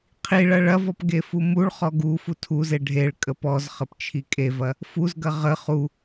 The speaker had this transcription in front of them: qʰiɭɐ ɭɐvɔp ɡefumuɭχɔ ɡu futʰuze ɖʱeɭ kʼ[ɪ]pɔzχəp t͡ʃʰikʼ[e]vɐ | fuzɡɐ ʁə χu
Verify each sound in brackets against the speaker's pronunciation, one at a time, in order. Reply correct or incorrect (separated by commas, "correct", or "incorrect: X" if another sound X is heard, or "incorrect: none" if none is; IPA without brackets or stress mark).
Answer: incorrect: ə, correct